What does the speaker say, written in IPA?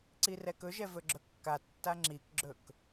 ǀ i r ɛ k ɵ ʒ ɛ v ɵ ɡ͡ǁ ɵ kː a tː a ŋ͡ǁ i k ɡ͡ǁ ɵ k

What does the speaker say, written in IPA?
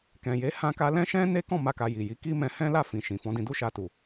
k ɛ̃˨ j e˨˦ h ã˧ k a˧ l ɛ̃˦ ʃ ɛ̃˦ n e˦ k ɔ̃˦˨ m a˧ k a˨ j i˨ j i˨˦ k i˦ m ɛ̃˧ h ɛ̃˦ l a˦˨ f ĩ˨ ʃ ĩ˨ f ɔ̃˨˦ d ĩ˧ d u˦ ʃ a˧ t u˨

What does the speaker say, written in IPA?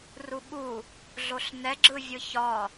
r u ɓ u | ɮ o ɬ n ɛ ɡ͡ǁ ɯ vʲ ɯ ç ɒ

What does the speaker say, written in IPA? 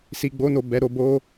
s i˧ ɡ͡b o˦ n o˦˨ b ɛ˨˦ ɾ o˧ b o˦

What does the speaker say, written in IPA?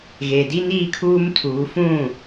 ɣ e˨ d i˦ n iː˦ kʰ uː˦ m tʰ uː˨˦ f ũ˦˨

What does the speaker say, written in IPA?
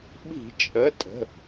ɓ i̤˧˩˧ t͡ʃʼ ə˩˧˩ tʼ ə̤˩˧˩

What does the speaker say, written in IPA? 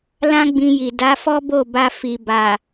l ã˦ ɡ͡b ĩ˧ j i˨ d a˨˦ f ɔ˦ b o˦˨ b a˧ f i˨ b a˨

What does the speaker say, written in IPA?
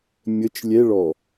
mʲ ə t͡ʃ lʲ ɛ ɭ ɔ

